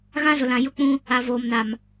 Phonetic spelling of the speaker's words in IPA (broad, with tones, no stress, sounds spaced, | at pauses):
ɣ ã˦ z ʊ˨ l ã˨ j ʊ˦ k͡p ũ˦ | a˨ v oː˨ m n a˨ m